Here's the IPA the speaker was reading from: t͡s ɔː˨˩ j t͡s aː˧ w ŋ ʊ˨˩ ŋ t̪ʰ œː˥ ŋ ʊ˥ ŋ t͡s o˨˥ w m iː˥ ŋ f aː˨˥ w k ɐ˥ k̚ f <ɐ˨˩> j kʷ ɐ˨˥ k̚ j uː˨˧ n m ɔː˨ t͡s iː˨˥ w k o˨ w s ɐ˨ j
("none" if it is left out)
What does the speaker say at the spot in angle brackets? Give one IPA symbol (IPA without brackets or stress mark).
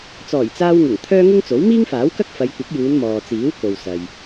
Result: ɐ˨˧